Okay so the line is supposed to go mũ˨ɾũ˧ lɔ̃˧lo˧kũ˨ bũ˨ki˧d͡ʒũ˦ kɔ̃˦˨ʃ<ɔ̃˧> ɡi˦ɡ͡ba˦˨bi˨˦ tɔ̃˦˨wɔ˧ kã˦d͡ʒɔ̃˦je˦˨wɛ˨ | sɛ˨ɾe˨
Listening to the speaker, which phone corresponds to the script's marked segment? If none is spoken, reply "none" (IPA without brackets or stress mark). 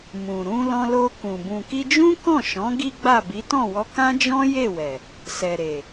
ɔ̃˨˦